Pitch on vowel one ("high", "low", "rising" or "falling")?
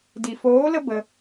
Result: low